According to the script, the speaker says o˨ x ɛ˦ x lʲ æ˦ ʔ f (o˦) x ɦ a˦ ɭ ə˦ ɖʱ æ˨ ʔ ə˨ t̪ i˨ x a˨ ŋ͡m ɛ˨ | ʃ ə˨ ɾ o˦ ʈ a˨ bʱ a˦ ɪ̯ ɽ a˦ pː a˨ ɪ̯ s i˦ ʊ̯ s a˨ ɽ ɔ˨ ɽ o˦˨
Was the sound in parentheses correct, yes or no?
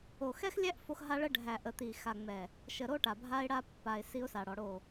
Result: yes